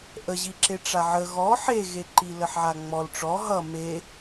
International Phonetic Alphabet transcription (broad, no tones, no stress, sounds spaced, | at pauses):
ʔ ə ʑ i ǁ e ʈ͡ʂ a ʕ ə ɣ ɔ ħ e ɣ e ǃ i l ə ħ ʕ a ŋ͡m ɔ l ʈ͡ʂ ɔ ɦ ʌ m e